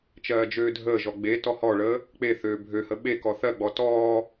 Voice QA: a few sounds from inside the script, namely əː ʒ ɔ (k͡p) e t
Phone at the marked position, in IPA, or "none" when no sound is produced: ɡ͡b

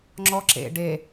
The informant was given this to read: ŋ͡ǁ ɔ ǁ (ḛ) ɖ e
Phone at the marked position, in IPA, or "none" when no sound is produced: ḛ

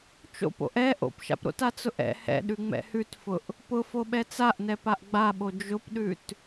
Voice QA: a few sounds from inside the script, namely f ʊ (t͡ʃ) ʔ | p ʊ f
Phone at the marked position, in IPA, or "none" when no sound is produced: none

